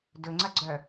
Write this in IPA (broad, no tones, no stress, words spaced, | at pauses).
dɵŋ͡ǀɐɡ͡ǀœ